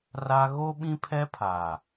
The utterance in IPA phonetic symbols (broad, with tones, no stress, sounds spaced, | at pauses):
r a˦ ɣ o˦ ɓ ĩ˦ pʰ ɛ˦ pʰ aː˨